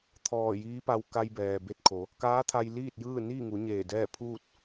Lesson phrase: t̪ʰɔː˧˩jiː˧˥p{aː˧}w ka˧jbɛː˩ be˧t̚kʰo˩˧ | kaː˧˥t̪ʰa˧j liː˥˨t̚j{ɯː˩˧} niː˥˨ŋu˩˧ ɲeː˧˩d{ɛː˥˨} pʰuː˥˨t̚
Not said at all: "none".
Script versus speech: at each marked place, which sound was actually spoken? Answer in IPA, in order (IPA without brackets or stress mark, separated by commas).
a˧, ɯː˥˨, ɛː˥˨